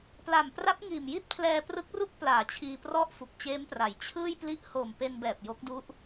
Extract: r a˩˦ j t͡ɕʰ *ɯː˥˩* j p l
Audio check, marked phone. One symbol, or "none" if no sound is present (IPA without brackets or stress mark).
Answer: ɯː˥˩